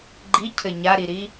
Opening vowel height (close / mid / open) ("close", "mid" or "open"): close